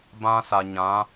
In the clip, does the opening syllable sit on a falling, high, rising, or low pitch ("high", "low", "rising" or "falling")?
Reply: high